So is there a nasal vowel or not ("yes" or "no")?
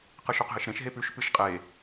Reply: yes